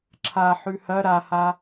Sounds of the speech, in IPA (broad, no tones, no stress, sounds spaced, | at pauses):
ǁʰ a ħ ʉ h ɐ ɾ a h a